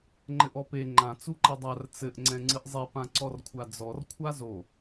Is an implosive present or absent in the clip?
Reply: absent